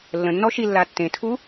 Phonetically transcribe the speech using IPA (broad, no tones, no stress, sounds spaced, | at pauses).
lː ə̃ nː ɔ ʃ i lː a tː ẽ tʰ u